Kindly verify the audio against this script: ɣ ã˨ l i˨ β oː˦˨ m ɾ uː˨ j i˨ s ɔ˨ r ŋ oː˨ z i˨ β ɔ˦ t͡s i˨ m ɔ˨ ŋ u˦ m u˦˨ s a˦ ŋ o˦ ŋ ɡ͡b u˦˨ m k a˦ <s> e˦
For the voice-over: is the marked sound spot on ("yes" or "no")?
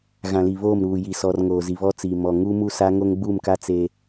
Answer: no